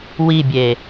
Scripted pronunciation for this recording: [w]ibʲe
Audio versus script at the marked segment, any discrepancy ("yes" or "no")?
no